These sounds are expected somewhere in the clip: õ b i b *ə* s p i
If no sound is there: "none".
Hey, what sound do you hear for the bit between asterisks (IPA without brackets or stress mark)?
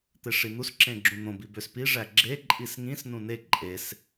ø